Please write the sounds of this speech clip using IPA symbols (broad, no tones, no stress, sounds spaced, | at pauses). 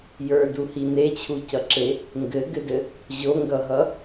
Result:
j ə˞ d u h i n e t͡ɕʰ u c ʌ ǁ e | ŋ ɡ ɘ ɡ ɘ d ɘ | ʑ o ŋ ɡ ʌ ɦ ʌ